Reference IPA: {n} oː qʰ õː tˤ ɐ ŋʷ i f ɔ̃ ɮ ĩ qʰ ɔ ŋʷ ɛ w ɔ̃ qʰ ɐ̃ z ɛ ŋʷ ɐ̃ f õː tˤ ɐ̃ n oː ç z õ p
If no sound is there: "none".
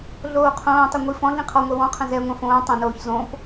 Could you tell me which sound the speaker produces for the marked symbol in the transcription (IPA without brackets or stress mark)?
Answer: ɮ